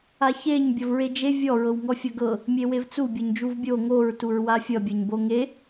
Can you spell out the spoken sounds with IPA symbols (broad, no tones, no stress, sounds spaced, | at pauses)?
a ç e ɲ bʲ ʌ v ɹ e d͡ʒ e vʲ ɔ ɹ ɤ w ŋ ɔ fʲ ʌ ɡ ɤ | mʲ e w e v t͡s u bʲ ɔ ɲ d͡ʒ u v bʲ o ŋ o ɹ t u ɹ w a fʲ ʌ bʲ ʌ ɲ b o ŋ e